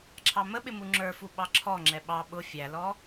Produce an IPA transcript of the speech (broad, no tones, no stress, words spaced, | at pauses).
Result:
ǁʰɑməɓɪ muŋ͡ǁə˞fu ɓɑǁʰɔŋ͡ǁɛ ɓɑ ɓʊ fʲælɔ